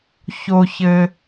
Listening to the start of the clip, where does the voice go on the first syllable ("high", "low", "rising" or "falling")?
low